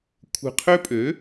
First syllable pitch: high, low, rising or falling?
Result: low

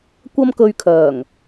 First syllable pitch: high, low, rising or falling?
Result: high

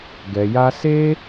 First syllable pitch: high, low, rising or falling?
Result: low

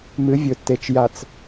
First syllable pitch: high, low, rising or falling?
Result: rising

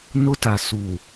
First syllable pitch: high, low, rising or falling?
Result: high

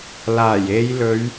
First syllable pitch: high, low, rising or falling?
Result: low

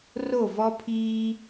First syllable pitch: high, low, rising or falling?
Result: falling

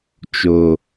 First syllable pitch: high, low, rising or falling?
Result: low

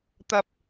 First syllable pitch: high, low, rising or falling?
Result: high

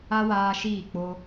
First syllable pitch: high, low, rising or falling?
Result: high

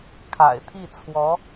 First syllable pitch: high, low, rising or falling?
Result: low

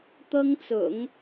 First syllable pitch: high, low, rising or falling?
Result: high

